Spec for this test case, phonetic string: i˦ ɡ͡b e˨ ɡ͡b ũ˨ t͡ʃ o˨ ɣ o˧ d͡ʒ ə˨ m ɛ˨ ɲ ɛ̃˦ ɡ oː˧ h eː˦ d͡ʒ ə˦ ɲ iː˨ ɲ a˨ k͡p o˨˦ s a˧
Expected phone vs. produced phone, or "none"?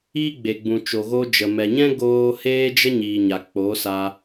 none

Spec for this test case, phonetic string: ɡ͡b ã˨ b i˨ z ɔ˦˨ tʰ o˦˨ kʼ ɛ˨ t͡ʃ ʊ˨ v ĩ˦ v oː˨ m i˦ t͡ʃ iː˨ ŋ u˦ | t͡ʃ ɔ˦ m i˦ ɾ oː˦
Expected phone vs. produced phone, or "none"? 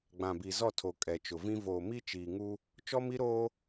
o˦˨ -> o˨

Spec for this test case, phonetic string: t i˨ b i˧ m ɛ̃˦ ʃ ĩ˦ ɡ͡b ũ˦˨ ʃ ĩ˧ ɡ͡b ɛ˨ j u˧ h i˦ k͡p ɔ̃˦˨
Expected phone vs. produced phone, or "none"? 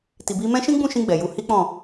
none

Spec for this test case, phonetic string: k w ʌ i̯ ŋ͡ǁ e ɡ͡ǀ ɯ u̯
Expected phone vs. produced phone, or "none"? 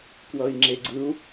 none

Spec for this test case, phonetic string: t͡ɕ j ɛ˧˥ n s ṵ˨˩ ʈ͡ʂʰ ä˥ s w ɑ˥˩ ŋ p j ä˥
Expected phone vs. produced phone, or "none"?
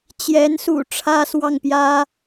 none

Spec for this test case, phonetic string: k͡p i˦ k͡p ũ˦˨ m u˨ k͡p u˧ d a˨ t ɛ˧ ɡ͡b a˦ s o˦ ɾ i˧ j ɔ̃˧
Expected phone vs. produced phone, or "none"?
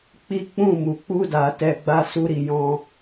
o˦ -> u˦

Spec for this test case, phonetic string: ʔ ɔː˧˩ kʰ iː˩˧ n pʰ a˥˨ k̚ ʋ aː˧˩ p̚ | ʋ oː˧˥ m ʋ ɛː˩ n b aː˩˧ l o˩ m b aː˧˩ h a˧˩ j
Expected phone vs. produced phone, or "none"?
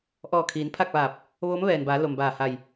none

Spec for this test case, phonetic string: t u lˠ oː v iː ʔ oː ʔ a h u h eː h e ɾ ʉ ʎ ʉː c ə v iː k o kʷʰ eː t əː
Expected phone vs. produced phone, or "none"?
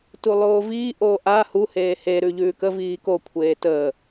c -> k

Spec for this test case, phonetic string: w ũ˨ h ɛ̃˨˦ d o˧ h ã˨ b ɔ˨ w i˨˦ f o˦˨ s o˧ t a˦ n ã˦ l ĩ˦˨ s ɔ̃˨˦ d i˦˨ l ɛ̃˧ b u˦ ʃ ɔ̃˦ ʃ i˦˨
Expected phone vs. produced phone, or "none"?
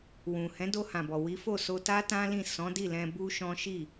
n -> t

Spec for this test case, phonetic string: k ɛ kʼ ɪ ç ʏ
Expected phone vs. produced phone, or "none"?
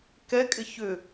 none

